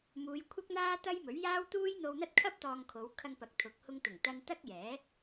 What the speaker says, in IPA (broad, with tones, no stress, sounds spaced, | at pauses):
m uː˨˧ j kʷʰ ɐ˥ k̚ n̪ aː˥ t̪ ɐ˥ j m ɵ˨˥ ɥ j aː˥ w t̪ uː˥ j n̪ o˧ w n̪ ɐ˥ t̚ kʰ ɐ˥ p̚ t̪ ɔː˧ ŋ kʰ o˨˧ w kʰ ɐ˧ ŋ p ɐ˨˥ k̚ t̪ʰ ʊ˨˥ k̚ h ʊ˧ ŋ t̪ ʊ˨˩ ŋ t̪ ɐ˧ n t̪ ɐ˥ k̚ j ɛː˨˥